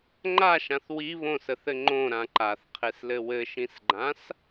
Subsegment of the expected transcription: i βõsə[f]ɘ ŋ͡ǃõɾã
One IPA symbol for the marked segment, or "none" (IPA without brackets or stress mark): θ